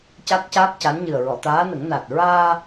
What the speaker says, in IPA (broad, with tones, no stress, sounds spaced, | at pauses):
c a˦˥ k̚ c aː˦˥ k̚ c a˧˥ n ɲ ɨ˨˩ ə̯ ɹ ɔ˨˩˨ t̪ aː˧˥ n ə˨˩˦ ŋ n a˨˩ t̚ ɹ aː˧